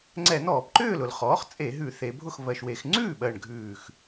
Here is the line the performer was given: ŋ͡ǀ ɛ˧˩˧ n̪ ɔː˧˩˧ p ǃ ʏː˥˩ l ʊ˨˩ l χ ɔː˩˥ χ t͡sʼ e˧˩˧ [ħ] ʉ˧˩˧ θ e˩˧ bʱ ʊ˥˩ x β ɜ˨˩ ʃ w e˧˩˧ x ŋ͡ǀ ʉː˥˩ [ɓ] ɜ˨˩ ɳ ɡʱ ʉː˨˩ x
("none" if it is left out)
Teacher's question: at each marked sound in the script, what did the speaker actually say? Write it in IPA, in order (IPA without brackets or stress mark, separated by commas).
ɦ, ɓ